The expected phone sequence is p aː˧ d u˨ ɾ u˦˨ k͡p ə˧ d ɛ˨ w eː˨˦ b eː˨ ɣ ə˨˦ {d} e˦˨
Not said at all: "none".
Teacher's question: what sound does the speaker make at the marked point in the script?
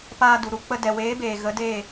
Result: d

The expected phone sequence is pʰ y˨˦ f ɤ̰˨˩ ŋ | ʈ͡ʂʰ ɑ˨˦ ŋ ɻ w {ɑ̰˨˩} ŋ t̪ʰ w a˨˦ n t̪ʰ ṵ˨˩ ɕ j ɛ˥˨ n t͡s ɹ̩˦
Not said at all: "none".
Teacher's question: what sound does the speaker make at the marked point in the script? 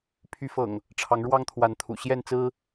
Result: ɑ˦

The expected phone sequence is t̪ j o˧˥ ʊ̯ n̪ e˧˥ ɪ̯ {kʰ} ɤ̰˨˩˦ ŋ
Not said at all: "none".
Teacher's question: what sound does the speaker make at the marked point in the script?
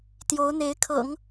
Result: kʰ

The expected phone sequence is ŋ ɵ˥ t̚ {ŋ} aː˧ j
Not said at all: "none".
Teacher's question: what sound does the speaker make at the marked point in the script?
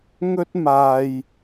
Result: m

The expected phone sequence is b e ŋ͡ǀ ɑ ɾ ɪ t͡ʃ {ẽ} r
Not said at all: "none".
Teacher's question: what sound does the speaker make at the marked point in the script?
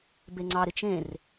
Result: ẽ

